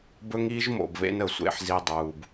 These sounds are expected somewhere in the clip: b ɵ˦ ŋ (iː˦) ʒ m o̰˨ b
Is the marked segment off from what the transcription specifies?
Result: no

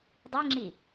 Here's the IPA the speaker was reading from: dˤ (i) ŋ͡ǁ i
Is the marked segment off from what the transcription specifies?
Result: no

